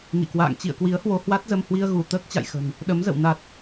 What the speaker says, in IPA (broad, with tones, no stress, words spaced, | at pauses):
ŋḭ˧˨kwa̰ː˧˨ŋ t͡ɕḭ˧˨ə̯kwi˨˦ə̯hwo˧ hwa˦˥t̚zə˧mhwi˧ə̯ɣu˧˩ t̪əː˦˥k̚t͡ɕa̰˧˨jxə̤˨˩n | ɗə˨˦mzə̰˧˨w na˨˩t̚